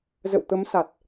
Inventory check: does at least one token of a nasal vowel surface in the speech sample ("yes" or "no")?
no